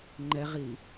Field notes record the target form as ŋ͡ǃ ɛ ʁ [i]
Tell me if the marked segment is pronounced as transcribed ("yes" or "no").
yes